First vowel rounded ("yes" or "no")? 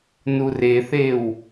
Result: yes